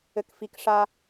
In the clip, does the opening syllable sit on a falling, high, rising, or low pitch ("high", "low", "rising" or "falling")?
low